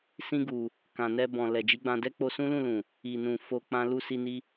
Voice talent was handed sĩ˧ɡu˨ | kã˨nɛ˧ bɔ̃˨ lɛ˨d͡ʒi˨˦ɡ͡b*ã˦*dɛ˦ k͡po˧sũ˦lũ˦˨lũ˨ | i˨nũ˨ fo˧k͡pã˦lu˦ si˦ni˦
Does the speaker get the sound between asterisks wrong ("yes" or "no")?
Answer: yes